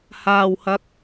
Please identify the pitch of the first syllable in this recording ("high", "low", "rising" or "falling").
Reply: low